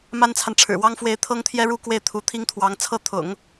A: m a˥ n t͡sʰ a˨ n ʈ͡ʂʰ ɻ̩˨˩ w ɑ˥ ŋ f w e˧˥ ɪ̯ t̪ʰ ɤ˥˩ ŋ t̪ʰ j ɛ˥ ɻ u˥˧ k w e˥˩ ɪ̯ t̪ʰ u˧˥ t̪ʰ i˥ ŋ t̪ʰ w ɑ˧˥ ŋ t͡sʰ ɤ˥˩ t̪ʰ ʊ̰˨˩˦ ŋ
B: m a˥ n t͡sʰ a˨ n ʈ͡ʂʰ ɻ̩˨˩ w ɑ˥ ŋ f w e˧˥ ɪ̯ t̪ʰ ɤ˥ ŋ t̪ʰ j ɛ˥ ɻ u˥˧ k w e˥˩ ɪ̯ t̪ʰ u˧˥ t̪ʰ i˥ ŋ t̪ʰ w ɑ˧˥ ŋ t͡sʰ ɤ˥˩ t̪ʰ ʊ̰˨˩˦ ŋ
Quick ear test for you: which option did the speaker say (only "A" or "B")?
B